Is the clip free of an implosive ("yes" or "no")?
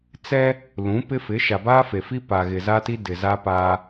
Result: yes